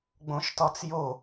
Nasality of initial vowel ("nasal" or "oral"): nasal